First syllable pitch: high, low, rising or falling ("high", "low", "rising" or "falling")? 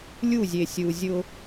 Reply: falling